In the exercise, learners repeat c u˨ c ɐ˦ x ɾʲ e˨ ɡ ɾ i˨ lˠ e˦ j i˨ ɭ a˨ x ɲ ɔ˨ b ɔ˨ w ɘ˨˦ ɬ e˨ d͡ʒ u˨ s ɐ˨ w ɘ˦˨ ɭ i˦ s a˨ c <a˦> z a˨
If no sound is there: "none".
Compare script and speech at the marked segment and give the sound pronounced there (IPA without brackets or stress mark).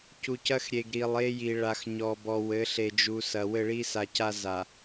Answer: a˦